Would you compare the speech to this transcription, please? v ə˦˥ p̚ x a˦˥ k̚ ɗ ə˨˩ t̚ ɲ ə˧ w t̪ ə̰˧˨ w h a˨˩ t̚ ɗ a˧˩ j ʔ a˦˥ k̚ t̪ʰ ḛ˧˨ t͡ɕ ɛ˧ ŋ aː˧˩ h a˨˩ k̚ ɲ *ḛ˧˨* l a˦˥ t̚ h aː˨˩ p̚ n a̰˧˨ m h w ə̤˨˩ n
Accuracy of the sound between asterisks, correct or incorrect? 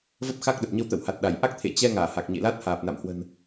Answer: correct